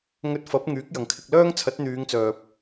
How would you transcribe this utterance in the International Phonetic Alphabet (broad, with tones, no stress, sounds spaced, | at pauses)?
ŋ ɵ˧ t̚ f ɐ˨˥ p̚ ŋ yː˨˥ k̚ j ɐ˨ ŋ kʰ ɪ˧ k̚ l œː˥ ŋ t͡sʰ ɐ˨˥ t̚ n̪ yː˨˧ ŋ t͡s œː˨ p̚